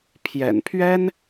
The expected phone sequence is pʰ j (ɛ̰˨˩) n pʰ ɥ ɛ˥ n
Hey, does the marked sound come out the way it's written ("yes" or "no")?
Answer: yes